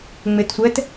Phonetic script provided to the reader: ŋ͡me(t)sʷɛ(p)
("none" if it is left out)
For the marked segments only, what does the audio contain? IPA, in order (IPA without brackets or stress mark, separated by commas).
t, t